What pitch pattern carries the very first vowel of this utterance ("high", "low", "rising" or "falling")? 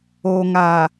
low